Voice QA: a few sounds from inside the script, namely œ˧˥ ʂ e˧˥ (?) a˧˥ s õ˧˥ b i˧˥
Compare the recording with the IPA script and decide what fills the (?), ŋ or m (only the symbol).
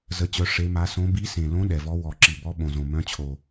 m